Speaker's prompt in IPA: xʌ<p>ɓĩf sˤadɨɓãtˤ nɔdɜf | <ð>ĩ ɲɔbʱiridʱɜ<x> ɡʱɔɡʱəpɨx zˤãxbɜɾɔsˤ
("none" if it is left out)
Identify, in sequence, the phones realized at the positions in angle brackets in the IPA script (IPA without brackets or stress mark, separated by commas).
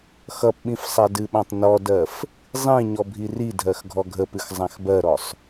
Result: p, zˤ, x